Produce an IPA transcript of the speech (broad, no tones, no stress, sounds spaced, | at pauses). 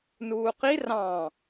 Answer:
n uː q i r ɑ̃